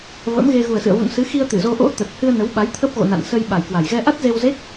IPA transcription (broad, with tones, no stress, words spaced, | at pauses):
və̰˧˥mɣe˧ ɣu˨˩ə̯sɨ̰˧˨ə̯vṵ˧˨n sɨ˨˦xi˧ə̯ t̪ɨ˧˩zo˧ʔo̰˧˥ t̪ə˨˩t̚hɨ˧ə̯nə˨˦wɓa˨˦j t̪ʰə˦˥p̚ɣo̰˧˨ na̰˧˨n sə˧jɓa˨˩jkwa˨˩j ɣɛ˧ʔa˦˥t̚ze˧wze˦˥k̚